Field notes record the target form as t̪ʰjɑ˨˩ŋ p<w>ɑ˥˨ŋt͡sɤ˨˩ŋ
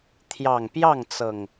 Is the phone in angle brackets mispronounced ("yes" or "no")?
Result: yes